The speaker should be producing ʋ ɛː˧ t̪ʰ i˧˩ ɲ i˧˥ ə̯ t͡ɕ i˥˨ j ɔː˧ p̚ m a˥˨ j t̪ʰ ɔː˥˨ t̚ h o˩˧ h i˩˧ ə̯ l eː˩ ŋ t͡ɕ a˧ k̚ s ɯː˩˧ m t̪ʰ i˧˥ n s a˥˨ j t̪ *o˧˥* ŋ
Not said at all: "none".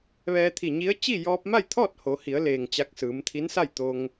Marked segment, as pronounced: o˧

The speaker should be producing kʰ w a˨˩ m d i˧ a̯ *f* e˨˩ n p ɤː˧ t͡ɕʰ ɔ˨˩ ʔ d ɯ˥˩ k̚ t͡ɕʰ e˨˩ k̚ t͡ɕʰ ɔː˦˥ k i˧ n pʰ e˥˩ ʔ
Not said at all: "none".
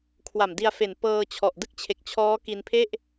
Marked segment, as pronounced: f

